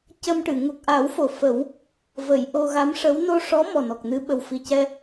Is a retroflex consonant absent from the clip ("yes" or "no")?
no